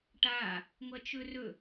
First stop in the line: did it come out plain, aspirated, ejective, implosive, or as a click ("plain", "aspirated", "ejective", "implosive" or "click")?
plain